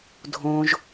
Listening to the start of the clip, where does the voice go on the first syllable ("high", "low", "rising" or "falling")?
low